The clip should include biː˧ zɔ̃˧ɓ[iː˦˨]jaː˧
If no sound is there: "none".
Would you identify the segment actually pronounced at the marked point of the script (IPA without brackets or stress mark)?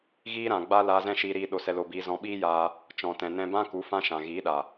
iː˦